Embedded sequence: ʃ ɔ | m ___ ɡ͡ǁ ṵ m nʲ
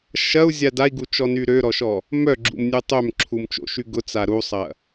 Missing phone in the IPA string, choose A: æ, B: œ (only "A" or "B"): B